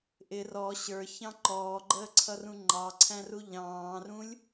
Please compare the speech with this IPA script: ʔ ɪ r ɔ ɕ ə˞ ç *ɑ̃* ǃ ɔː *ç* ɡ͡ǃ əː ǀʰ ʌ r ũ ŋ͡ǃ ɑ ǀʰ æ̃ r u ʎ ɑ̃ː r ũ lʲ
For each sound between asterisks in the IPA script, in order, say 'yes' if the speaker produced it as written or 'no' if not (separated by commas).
yes, no